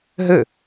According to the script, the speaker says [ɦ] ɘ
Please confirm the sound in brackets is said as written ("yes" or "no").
yes